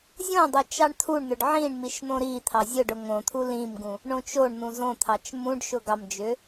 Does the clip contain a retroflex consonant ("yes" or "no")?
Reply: yes